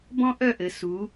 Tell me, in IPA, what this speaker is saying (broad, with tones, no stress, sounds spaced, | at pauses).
b ɔ̃˥ ʔ œ˥˧ ʔ ɘ˩˧ s u˩˧